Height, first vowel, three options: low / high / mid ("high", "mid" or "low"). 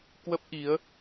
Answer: mid